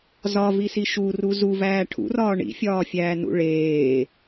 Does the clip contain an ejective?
no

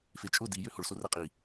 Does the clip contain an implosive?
no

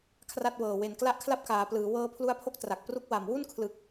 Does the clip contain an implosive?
no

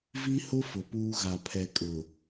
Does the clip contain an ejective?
yes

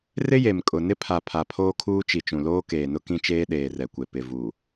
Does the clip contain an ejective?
yes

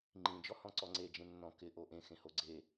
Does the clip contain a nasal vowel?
yes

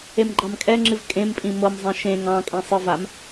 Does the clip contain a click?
yes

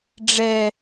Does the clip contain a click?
no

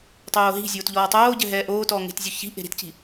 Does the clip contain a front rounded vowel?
no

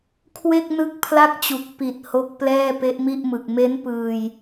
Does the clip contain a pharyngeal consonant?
no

